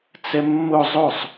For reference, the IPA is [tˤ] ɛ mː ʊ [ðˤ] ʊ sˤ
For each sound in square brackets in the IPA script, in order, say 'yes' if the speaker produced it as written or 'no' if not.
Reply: no, no

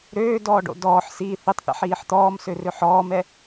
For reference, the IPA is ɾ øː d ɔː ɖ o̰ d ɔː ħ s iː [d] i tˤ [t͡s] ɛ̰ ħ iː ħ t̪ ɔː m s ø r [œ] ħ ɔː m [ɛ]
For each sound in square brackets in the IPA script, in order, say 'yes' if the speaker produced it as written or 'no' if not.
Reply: no, no, no, yes

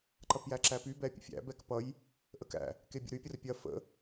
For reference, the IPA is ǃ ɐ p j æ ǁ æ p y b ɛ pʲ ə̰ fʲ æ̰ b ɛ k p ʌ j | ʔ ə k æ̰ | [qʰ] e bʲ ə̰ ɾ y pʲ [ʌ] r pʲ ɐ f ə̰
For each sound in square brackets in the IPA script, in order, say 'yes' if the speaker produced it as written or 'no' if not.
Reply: no, no

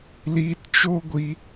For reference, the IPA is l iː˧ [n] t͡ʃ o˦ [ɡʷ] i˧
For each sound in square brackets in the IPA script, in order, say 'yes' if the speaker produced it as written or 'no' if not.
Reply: no, yes

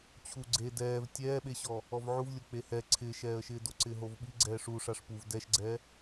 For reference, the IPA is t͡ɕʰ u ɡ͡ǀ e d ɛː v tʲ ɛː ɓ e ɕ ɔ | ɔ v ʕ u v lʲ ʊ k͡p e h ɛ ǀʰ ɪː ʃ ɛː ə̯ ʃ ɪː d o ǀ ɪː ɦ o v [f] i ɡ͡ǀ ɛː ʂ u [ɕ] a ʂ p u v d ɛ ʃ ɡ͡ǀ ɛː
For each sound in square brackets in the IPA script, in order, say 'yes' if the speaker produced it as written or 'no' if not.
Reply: no, no

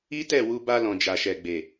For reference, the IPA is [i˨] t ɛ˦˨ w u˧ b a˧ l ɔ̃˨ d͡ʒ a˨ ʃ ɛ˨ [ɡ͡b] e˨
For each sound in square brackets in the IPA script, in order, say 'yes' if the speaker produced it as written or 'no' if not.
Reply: no, yes

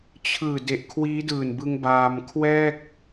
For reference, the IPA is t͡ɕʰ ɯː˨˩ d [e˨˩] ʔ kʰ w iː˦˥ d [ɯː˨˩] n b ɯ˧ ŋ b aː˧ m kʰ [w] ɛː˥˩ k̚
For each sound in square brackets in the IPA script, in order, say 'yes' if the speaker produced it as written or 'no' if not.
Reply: yes, yes, yes

